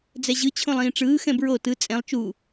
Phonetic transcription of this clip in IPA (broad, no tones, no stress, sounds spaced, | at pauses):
d͡z ɛ ʑ ɯ t͡ɕʰ õ lˠ ĩː ʈ͡ʂ ɯː x ɛ̃ b ɹ o t ɯ t͡sʼ ɛ̃ lˠ t͡ʃ u